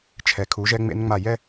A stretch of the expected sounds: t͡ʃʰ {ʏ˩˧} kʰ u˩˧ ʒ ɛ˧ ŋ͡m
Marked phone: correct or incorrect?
incorrect